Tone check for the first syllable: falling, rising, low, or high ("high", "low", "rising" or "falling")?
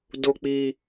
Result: low